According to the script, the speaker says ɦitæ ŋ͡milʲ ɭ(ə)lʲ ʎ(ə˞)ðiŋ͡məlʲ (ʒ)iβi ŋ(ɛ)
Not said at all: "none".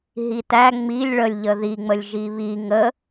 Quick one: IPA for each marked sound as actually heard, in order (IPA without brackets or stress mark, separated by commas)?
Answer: ə, ə, ʒ, ə